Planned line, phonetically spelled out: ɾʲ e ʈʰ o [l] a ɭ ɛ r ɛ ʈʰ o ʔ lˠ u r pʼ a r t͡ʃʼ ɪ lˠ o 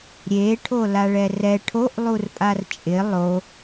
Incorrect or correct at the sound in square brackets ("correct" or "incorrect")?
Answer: correct